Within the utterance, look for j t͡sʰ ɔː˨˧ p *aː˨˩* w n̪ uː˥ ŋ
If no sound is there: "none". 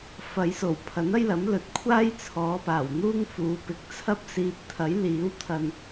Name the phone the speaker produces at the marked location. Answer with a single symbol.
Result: aː˨˩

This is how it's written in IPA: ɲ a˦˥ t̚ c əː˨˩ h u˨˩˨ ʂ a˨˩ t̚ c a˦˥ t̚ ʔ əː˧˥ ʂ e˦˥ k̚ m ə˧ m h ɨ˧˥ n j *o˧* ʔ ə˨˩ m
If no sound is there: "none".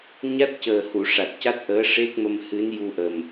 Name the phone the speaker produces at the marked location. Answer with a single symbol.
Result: u˧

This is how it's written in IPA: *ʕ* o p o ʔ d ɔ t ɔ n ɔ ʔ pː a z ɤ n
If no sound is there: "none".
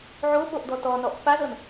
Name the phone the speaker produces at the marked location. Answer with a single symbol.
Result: ʕ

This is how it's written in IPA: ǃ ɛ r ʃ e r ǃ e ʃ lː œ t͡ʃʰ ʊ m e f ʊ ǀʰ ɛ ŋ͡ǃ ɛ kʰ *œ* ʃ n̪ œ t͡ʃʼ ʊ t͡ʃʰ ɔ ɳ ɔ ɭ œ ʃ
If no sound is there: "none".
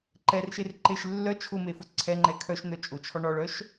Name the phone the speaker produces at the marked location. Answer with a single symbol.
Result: œ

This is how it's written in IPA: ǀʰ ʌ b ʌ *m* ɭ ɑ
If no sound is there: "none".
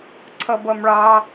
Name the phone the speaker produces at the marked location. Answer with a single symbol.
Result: m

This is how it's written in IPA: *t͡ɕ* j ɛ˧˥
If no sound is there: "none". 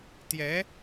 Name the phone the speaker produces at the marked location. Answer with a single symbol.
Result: t̪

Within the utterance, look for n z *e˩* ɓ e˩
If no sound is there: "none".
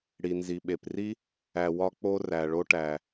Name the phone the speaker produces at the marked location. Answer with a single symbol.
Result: i˩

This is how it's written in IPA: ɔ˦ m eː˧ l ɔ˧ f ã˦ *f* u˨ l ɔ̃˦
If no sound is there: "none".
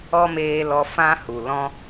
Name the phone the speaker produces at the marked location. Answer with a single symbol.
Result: h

